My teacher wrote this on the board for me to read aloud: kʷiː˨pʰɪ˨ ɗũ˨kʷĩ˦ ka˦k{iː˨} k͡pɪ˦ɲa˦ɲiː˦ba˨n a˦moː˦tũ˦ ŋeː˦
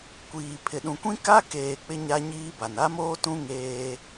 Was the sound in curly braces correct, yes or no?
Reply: no